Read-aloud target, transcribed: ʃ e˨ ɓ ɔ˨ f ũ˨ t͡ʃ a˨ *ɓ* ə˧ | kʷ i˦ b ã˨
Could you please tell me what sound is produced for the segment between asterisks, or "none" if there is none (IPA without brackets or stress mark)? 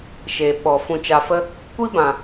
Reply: f